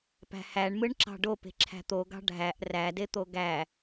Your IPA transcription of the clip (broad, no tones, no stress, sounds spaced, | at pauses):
p æ̤ h æ ɳ m ɯ ɳ ǁ ɑ̤ ɖ o p e̤ ǁʰ æ̤ t̪ o ɡ ɑ̤ ɖʱ æ ʔ r æ d e t̪ o ɡ æ